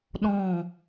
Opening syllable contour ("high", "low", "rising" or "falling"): falling